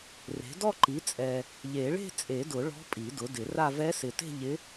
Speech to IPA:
re̤˩˥dɔ˥˧ǃi˩˥ t͡sʼɛ˨ | ʎe˨˩˦ɭe̤˥˧t͡sʼe˨˩˦dʊ˨˩˦ ɭɔ̤˧˥pʼi˨˩˦ dʊ˩˥dɪ˨˩˦ra˥˧ vɛ˧˥sɪ˨te̤˥˧ ʎɪ˧˥

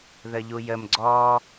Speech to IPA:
ðəʎujəm ɡ͡ǀɔ

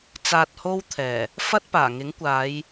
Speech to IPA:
t͡saː˧t̚ho˥wt̪ʰɛː˨˩ | fɐ˥t̚paː˨˩ŋɪ˨˥ŋkʷaː˨˧j

